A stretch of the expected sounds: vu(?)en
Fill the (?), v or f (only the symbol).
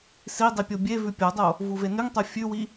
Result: v